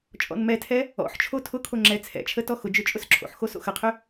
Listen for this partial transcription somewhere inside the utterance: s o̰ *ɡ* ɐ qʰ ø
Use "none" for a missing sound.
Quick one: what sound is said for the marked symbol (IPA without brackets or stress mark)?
x